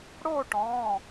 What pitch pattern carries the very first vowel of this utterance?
falling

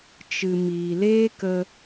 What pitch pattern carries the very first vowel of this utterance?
low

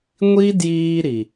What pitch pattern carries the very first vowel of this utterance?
high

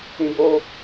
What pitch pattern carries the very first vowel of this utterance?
high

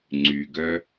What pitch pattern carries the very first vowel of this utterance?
low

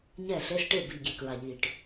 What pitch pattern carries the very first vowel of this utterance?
falling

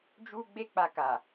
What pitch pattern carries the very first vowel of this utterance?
high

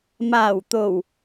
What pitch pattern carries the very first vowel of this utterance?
low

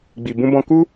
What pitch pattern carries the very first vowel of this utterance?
low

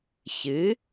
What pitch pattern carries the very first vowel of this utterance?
rising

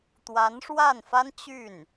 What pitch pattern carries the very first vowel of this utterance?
rising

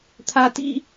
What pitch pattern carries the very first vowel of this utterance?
high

